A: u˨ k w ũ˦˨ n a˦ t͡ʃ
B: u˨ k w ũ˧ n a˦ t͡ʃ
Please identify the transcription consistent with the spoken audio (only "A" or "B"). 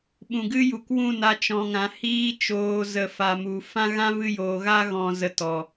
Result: A